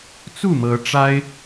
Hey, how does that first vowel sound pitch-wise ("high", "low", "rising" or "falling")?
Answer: falling